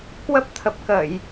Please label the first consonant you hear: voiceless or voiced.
voiceless